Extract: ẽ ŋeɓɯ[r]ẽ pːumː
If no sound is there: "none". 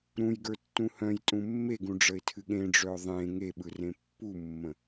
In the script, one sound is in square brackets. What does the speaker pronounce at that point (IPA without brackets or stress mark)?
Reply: r